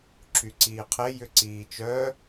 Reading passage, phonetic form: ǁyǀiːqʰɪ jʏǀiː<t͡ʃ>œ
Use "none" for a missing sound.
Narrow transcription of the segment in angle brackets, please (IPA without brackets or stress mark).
t͡ʃ